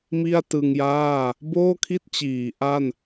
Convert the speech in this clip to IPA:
m i˥˩ a̯ t ɯ˧ ŋ j aː˥˩ | b oː˥˩ kʰ i˥˩ t̚ t͡ɕ iː˩˦ ʔ a˥˩ n

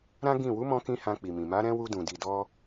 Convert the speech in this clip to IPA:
ɾ ã˦ ɡ ĩ˦˨ w u˨˦ m ɔ̃˧ k ĩ˧ h ã˧ k͡p i˨ m ĩ˨ m a˨˦ ɾ ɛ̃˦ w u˧ d ũ˨ d i˨ d ɔ˧

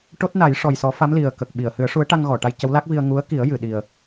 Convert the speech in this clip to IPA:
ʈ o˦˥ t̚ n a˨˩˦ j ʂ ɔ˨˩ j s ɔ˨˩˦ f a˧˥ m l i˨˩ ə̯ k ə˨˩ k̚ ɓ i˨˩˨ ə̯ h ɨ˨˩˦ ə̯ ʂ u˧˥ ə̯ ʈ a˧ ŋ ɣ ɔ˨˩˨ ʈ a˧ j c ə˧˥ w l a˦˥ k̚ v i˧ ə̯ ŋ u˧˥ ə̯ k i˨˩˦ ə̯ j ɨ˨˩˨ ɗ i˨˩ ə̯

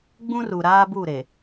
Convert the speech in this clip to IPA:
ɡ͡b ũ˦ r u˨ ɾ aː˦ b u˦˨ ɾ e˨

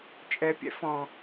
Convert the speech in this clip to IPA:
t͡ʃʼ ɛ pʲ ɛ̰ f ɔ̃

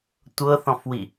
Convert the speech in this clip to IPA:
tʷ ɤ θ ɔ̃ f w i

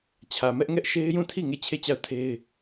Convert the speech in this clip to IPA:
t͡ɕʰ ä˨ m ɛ˦ ʔ ŋ ɛ˦ ʔ ʃ e˦ ɪ̯ j ũ˦˨ tʰ i˦˨ ŋ e˦˨ t͡ɕʰ e˦˨ t͡ɕ a˦˨ ʊ̯ tʰ e˦ ɪ̯

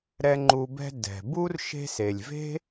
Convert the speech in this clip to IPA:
ɾ ɛ˦ ŋ͡ǃ u˦ b ɛ̤˥ d ɛ̤˨ b u˥ r ʃ e̤˦ s e˨ lʲ v e̤˥

